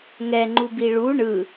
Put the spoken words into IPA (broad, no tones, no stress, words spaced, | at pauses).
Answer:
ŋɛŋ͡ǃubi ɭu ɳɯ